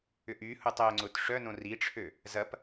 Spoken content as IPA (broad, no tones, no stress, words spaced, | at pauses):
ʏʔyhutˤ øŋ͡ǀʊt ʂœnõ riʈ͡ʂʰø | zɐp